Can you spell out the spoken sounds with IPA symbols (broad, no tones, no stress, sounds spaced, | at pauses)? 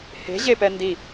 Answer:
h e̤ ʑ e p ɛ n d i